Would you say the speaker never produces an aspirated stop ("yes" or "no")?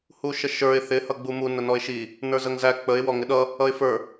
yes